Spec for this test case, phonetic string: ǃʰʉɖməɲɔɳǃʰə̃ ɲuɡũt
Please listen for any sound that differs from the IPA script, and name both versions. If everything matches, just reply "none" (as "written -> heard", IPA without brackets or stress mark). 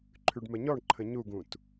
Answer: none